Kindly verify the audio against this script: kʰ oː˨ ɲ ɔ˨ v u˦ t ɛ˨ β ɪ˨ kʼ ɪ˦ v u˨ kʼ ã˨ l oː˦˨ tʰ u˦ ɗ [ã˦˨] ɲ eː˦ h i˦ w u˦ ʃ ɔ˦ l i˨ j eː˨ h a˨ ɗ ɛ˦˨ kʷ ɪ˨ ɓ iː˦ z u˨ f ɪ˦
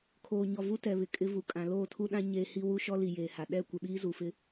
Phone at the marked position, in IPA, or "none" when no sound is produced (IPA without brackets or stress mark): ã˦